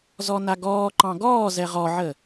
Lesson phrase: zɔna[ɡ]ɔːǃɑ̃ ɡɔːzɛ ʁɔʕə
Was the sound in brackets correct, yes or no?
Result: yes